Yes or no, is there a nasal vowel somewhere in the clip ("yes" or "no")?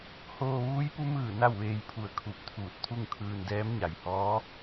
no